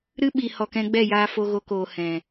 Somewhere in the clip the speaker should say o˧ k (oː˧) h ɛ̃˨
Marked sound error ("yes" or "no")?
yes